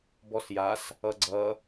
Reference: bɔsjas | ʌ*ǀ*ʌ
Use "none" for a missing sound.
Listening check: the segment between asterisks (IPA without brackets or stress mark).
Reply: ɡ͡ǀ